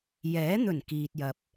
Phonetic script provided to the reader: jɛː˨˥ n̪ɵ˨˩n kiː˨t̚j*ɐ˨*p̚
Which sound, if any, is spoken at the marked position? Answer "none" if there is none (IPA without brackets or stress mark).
ɐ˨